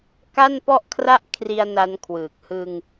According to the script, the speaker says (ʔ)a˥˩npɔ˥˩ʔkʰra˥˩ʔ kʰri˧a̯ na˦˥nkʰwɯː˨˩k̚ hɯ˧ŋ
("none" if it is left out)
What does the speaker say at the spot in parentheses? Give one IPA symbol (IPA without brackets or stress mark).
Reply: k